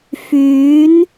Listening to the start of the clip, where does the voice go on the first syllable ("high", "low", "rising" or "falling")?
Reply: rising